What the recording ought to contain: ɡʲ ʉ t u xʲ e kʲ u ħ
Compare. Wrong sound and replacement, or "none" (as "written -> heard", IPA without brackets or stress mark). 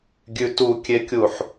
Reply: xʲ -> kʲ